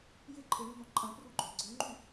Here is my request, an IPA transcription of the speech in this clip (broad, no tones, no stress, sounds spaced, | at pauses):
j ɪ ǃʰ ɪ ɳ y n̪ ɔ̃ ǃʼ ɐ̃ p r u ɡ͡ǃ ø ɡ͡ǀ ø ŋ͡ǃ y